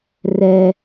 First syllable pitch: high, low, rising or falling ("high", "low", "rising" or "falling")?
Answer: high